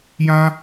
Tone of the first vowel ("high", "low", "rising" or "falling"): high